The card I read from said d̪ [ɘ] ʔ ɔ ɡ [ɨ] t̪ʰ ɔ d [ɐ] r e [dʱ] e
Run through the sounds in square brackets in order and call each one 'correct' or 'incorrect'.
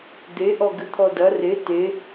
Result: incorrect: e, correct, correct, incorrect: t

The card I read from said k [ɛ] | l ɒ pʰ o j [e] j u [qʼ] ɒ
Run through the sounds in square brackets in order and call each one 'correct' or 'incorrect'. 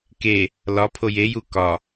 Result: incorrect: e, correct, incorrect: k

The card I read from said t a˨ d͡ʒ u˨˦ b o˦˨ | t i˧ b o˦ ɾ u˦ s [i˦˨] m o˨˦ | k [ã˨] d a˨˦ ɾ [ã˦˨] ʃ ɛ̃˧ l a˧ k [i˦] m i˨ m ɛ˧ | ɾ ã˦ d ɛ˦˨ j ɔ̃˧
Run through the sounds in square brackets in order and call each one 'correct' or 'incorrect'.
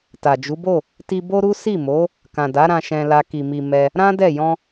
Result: correct, correct, incorrect: ã˧, incorrect: i˨

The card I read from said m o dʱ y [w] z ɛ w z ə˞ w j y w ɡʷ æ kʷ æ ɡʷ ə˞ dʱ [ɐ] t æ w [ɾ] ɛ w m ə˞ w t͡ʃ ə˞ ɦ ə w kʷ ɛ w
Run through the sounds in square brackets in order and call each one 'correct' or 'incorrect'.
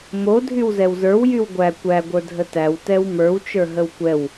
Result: correct, incorrect: ə, incorrect: t

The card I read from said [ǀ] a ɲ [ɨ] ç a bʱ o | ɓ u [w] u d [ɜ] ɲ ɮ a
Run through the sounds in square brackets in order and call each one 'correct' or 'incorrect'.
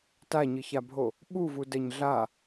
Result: incorrect: t, correct, incorrect: v, correct

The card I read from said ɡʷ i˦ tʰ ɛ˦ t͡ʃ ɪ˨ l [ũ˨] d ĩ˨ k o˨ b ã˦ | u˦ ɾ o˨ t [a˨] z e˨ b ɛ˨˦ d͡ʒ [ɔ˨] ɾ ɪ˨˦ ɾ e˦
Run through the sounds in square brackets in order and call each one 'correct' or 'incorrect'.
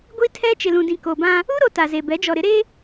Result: correct, correct, correct

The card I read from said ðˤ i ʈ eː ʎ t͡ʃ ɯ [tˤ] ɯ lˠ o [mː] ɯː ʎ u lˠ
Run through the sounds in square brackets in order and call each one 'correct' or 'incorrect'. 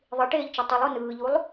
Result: correct, incorrect: n

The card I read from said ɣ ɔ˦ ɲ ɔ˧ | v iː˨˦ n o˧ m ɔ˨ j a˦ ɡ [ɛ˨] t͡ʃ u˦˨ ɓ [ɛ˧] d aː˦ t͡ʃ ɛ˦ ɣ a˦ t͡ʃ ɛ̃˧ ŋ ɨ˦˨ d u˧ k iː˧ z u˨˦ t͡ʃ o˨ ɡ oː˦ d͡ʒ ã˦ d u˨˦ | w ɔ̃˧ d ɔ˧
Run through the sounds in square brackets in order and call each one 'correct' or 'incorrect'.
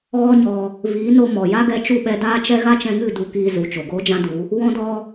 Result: incorrect: ɛ˧, correct

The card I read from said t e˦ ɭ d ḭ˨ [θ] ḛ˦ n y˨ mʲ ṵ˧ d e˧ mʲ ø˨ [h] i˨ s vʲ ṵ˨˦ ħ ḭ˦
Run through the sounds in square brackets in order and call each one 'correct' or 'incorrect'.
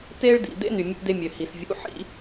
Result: incorrect: d̪, correct

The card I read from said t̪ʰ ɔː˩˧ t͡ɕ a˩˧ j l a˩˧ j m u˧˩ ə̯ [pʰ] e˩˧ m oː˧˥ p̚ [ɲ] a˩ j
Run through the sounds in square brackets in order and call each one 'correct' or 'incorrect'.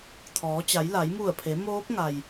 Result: correct, incorrect: ŋ

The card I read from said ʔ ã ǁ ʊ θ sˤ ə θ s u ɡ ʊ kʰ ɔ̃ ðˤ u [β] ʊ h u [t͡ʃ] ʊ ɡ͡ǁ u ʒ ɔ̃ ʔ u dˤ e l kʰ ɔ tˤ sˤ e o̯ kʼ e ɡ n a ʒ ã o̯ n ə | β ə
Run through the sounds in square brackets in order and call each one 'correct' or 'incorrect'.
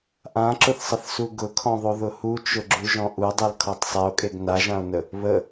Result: incorrect: ð, correct

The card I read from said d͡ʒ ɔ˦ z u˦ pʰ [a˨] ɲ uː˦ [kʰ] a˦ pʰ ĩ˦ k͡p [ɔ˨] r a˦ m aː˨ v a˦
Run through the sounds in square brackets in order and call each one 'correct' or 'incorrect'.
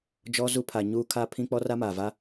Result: correct, correct, incorrect: ɔ˦

